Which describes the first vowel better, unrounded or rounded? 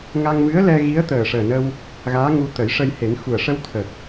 unrounded